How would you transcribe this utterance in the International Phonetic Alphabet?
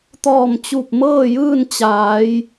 t̪ɔː˧˩mt͡ɕu˧˩p̚mɤː˥˨jɯː˥˨n t͡ɕaː˩˧j

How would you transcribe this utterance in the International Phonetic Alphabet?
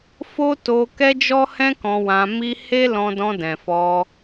fo˦to˧ kɛ˦d͡ʒɔ˦hɛ̃˦ kɔ̃˧wã˧mi˦ he˦ lɔ̃˧dɔ̃˧ dɛ̃˨fɔ˧

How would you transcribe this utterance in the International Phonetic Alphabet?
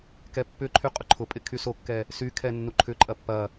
kɛpːʏǃʰy qʼʊǃʰʊpʼɪ kʰysokːɛ | sykʰɛ nːuǃʰʏǃʼɐ pːɐ

